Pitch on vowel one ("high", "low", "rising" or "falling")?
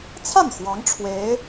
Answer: falling